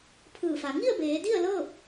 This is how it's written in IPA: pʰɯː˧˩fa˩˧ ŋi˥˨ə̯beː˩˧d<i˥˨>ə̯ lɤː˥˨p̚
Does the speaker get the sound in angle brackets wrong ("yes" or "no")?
no